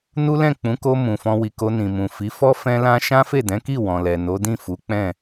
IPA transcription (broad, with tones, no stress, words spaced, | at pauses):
nu˦ lɛ̃˦˨k͡pũ˨˦ko˧ mũ˨fɔ̃˧ wi˨ ko˧ nĩ˨mũ˨ fi˨˦ fɔ˦ fɛ̃˦lã˦ ʃã˦fe˦˨dɛ̃˨˦ki˦˨ wɔ̃˨lɛ˨ no˨˦dĩ˦˨fu˨˦k͡pɛ̃˦˨